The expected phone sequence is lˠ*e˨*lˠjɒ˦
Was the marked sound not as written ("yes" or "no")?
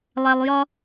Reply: yes